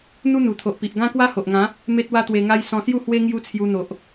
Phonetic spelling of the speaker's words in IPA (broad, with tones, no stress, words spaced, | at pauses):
n̪u˦n̪u˨˩t̪ʰo˨ʔpi˨ʔ ɡã˦kwa˦ho˨ʔŋã˨˦ | me˦t̚wa˦t̪we˧ŋa˦j sɔ̃˧sju˥˧hwe˦ ŋju˦t͡sʰju˧n̪o˨ʔ